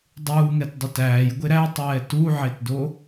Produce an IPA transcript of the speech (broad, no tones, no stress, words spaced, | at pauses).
dˤuːŋɛtdˤut æːjɡʷe ɾætˤɛː tuʕetdo